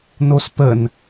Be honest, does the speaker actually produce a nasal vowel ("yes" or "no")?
no